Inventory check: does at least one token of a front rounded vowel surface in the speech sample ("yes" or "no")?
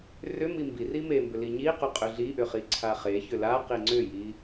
yes